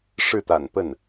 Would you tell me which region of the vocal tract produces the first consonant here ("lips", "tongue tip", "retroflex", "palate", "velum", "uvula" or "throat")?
retroflex